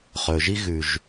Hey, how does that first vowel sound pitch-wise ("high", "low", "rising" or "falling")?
low